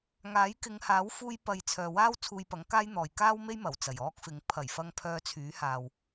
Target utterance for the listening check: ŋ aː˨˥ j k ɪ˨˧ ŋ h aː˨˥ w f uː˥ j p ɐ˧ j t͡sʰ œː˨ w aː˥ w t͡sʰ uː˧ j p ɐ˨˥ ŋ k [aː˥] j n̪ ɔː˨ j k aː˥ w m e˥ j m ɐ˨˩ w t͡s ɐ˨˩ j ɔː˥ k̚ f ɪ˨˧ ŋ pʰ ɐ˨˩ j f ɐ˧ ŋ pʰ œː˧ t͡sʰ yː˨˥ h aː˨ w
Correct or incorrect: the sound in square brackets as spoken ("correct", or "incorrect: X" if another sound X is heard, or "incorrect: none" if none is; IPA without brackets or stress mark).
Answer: correct